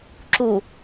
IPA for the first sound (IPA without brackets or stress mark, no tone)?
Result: ǁ